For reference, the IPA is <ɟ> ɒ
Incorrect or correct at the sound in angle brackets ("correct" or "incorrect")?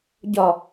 correct